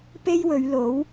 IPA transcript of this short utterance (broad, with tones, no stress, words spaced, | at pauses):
pe˥jwɵ˨˧ɥlo˨˥w